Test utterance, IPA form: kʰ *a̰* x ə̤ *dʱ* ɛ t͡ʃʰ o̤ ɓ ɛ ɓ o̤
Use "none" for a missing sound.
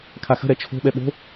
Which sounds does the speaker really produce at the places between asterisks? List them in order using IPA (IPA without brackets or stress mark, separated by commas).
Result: a, ɾ